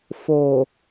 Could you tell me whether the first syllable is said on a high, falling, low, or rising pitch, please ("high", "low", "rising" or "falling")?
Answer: low